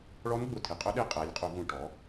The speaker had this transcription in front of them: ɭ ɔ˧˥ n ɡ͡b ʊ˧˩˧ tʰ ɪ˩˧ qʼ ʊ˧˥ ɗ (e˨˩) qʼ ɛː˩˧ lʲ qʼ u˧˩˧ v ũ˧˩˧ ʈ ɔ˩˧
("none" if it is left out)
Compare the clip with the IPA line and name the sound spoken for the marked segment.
e˧˥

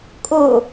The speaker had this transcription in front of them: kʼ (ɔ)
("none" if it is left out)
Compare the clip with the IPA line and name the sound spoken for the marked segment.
o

